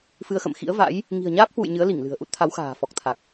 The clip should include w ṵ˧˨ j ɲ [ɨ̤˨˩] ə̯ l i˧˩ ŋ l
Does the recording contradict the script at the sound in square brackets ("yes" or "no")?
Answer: yes